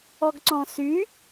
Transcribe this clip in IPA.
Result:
ɔ ɡ ǀ ɔ̃ s y

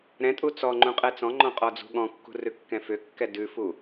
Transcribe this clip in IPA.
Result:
ɾ ɛ̃ tʼ u t͡s ɔ ŋ͡ǃ ũ qʼ ɛ t͡s ɔ̃ ŋ͡ǃ ɔ̃ qʼ ɔ d͡z ṳ ɠ ɔ̃ kː ṳ r ʉ kː ɛ̃ f ʏ kː ɛ d ʉ f u

